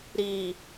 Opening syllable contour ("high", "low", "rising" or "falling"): low